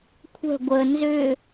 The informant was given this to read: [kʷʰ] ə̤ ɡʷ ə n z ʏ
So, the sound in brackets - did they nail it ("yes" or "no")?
yes